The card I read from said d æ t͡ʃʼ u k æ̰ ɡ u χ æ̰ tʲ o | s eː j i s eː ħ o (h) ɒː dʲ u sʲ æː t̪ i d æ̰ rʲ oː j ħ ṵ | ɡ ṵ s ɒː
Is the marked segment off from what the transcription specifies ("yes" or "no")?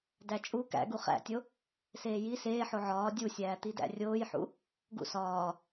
yes